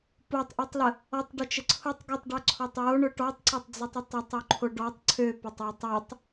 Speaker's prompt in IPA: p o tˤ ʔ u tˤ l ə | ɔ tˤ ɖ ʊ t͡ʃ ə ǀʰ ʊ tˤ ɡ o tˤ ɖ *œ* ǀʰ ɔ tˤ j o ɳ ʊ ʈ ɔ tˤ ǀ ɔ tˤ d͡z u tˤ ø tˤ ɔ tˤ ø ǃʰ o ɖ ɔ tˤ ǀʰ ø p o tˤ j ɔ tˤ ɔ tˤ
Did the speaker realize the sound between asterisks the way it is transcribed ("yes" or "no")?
yes